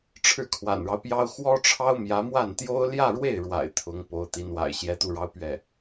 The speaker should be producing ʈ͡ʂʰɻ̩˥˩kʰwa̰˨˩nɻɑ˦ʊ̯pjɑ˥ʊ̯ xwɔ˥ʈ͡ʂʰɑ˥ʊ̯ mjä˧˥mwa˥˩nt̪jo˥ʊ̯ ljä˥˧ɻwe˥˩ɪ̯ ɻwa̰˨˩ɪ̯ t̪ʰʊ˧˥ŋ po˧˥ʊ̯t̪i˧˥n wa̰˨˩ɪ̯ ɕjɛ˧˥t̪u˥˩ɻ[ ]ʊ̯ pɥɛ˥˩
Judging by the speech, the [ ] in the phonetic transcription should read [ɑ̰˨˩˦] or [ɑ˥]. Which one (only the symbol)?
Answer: ɑ˥